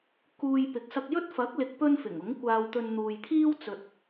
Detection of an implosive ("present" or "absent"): absent